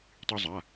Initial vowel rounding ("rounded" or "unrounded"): rounded